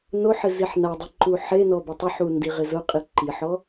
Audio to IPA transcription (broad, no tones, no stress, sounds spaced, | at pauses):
n o ħ ɪ z i ħ n a dˤ i ǃ u ħ e n ɔ b ʊ tˤ ʊ ħ u n d i ʁ ɪ z ʊ qʼ i ǃ i ħ ɔ